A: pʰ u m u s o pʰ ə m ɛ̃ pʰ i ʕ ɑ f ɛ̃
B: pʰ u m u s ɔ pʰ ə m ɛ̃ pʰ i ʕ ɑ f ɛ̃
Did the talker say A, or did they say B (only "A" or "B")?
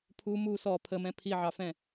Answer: B